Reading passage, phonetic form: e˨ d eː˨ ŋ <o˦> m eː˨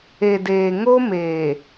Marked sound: correct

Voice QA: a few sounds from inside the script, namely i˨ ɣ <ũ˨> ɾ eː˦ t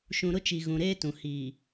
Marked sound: correct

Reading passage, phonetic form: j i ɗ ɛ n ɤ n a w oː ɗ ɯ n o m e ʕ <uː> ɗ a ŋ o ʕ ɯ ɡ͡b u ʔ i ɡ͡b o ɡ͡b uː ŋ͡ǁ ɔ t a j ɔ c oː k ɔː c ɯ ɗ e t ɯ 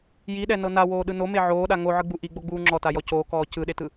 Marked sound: incorrect: oː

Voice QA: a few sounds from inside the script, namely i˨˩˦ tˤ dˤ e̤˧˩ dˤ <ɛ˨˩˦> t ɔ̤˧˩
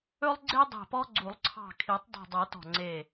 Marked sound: correct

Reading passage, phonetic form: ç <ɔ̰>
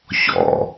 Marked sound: correct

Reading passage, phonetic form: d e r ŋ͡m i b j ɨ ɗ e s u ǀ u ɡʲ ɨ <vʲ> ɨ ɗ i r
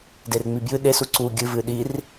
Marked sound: incorrect: v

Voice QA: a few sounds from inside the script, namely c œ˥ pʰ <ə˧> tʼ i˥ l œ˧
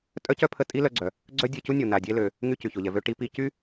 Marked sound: correct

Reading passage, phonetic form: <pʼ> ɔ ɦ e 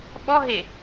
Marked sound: incorrect: ɓ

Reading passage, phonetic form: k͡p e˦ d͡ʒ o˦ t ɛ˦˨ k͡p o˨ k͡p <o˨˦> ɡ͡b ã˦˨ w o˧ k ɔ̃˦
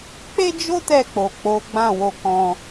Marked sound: correct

